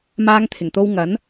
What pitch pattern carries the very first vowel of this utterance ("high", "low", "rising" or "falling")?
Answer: high